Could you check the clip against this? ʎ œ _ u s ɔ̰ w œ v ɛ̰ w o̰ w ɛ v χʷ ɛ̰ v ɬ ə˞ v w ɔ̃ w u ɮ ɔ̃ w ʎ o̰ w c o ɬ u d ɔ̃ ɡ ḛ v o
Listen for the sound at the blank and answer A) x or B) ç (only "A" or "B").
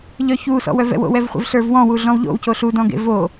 B